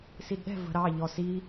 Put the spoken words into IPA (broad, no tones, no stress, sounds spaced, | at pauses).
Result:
s i d ɗ ɛ̤ v ə̤ ɾ ɑ ʎ ɔ s i